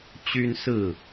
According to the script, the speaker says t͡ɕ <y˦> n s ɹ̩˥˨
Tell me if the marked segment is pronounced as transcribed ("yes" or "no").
yes